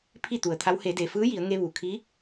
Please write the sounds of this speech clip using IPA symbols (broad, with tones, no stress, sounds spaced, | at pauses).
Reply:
pʰ i˥˨ t̪ u˩ ə̯ t̪ʰ a˧˥ w h e˩˧ d eː˩ f ɯː˧˥ j i˩˧ ə̯ ŋ e˧ ʋ uː˩ kʰ iː˧˥